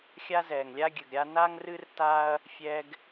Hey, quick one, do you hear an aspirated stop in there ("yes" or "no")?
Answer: no